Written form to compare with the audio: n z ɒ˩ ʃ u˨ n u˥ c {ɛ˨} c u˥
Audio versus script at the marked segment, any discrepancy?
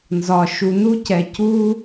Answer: no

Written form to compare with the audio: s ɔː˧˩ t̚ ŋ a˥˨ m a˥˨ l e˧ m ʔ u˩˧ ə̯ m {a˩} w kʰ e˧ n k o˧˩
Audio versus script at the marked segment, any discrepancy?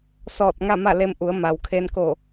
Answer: no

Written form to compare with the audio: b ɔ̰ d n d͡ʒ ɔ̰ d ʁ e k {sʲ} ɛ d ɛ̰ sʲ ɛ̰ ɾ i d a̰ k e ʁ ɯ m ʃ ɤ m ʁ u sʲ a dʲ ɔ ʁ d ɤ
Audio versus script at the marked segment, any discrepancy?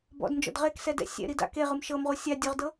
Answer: yes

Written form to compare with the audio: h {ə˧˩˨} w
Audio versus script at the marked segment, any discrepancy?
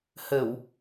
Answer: no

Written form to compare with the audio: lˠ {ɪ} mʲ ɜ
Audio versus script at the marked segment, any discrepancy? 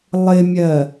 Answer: no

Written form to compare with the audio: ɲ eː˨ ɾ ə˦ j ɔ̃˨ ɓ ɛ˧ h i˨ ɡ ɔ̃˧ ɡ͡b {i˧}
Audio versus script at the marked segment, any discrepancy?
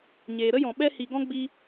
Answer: no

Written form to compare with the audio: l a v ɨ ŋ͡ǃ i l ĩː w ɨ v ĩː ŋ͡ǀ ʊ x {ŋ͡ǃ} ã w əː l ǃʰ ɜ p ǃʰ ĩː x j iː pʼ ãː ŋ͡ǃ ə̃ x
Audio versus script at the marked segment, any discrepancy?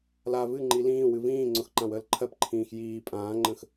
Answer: yes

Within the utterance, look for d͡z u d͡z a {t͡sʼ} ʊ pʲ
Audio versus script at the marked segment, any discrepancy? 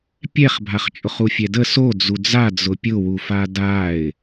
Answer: yes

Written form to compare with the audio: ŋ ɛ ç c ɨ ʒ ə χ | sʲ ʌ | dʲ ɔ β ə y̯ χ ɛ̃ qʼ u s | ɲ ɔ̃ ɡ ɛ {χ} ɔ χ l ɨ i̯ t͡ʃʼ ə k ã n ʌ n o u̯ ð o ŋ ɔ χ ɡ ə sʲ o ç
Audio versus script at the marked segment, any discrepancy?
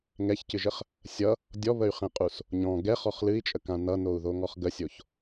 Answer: no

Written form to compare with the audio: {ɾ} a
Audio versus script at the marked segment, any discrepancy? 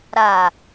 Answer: no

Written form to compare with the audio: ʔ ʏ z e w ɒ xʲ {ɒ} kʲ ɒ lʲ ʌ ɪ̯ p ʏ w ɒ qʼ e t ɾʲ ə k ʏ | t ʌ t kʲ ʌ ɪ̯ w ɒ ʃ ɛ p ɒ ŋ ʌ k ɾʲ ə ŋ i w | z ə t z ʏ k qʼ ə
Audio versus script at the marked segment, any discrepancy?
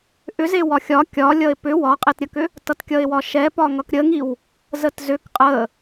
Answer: no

